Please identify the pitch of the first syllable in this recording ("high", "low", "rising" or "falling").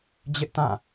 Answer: high